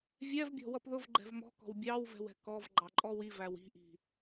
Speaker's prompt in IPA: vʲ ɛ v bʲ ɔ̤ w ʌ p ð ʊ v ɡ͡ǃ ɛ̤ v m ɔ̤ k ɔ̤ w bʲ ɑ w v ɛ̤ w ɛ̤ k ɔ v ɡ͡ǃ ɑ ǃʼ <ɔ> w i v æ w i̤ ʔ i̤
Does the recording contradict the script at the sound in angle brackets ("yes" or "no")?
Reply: no